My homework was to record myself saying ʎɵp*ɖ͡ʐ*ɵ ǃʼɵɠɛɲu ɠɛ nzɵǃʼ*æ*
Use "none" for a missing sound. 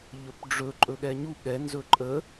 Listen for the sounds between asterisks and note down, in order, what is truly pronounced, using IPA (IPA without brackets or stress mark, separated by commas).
ɖ͡ʐ, ə